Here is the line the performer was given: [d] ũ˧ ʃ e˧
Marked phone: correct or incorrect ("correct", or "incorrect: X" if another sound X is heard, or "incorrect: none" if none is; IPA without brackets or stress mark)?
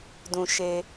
correct